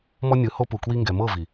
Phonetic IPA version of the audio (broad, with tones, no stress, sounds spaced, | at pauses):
m ɔ˦ nʲ ɯ˨˦ h o˧ p u˨ k w i˧ ŋ ɡ ɛ˨ m ɤ˦˨ v i˨